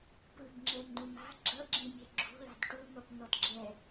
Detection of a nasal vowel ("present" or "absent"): present